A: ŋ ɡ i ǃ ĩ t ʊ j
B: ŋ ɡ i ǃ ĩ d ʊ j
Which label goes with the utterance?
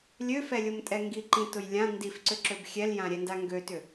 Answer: A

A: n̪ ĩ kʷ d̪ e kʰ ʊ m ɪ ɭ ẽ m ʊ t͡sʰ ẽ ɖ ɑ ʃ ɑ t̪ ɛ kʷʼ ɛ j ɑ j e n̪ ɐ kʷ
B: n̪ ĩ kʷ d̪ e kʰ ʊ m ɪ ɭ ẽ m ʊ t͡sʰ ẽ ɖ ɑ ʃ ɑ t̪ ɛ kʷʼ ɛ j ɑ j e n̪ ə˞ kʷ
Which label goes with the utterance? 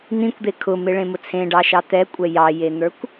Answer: B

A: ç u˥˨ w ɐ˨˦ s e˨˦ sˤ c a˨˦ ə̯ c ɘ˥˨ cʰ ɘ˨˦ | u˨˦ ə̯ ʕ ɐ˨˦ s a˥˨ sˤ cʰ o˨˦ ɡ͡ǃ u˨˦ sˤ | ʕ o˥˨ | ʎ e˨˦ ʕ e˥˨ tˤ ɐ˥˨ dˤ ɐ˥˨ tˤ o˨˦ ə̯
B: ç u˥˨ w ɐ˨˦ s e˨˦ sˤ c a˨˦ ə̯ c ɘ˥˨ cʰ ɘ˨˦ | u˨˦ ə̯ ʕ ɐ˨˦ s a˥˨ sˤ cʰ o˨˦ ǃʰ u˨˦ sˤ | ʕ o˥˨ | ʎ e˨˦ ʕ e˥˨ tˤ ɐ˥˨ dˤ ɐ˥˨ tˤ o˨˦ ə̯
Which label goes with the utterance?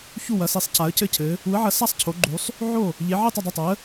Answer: A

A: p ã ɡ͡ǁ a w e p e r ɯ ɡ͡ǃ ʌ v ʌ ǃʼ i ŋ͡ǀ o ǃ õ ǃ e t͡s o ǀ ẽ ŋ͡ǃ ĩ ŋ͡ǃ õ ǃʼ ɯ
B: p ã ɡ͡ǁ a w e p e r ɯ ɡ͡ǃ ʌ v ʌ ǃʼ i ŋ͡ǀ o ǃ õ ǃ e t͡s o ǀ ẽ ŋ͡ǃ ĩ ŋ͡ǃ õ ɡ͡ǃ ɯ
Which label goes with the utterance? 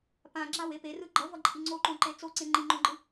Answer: B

